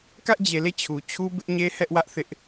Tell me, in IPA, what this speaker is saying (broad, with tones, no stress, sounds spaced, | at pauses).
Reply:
k ä˦ ʔ d͡ʑ e˨ l e˦˨ t͡ɕʰ u˨ t͡ɕʰ u˦ b ɪ˦ ʔ ɲ e˦ h ɛ˦ ʔ w ä˦ ʔ θ ɪ˦ ʔ